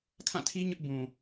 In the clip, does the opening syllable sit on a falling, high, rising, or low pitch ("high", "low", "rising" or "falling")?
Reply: falling